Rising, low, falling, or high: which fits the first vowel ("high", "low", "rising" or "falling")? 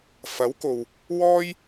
rising